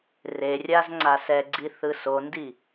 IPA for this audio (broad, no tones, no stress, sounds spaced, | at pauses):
r e rʲ a z ŋ͡ǀ a s ɛ ɡ͡ǀ i θ ɯ s o n d i